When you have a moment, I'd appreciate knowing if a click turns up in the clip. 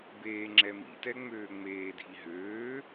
yes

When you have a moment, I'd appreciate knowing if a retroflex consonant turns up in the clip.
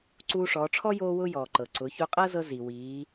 yes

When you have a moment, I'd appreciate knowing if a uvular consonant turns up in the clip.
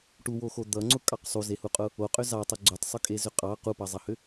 yes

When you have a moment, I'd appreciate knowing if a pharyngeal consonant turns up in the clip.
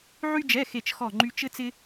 yes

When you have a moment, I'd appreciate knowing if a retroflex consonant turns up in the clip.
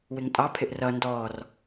no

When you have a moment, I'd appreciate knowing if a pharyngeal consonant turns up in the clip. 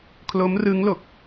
no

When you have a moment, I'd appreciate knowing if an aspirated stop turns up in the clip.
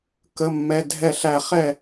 no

